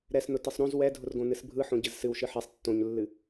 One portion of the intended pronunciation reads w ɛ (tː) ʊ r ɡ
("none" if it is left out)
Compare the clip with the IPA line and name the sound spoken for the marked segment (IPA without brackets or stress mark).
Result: dʱ